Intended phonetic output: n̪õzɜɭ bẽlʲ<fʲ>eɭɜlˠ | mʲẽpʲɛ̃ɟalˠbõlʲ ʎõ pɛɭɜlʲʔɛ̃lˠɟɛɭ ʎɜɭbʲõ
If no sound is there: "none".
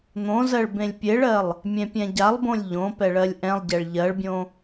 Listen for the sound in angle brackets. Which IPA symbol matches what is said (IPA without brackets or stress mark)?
pʲ